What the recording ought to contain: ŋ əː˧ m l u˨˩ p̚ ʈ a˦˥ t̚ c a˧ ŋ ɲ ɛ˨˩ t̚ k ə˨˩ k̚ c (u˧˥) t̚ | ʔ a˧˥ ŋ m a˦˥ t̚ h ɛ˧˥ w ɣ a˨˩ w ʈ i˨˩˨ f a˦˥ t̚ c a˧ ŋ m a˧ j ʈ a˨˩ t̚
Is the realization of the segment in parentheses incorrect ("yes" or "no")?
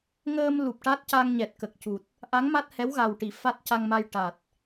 yes